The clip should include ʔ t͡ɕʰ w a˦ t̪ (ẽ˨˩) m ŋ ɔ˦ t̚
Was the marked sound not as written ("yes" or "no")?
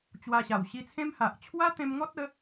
yes